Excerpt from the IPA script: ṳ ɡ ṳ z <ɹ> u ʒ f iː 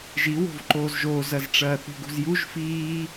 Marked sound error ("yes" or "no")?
yes